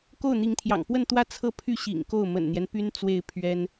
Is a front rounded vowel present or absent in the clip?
present